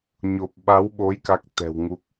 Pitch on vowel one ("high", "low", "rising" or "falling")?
low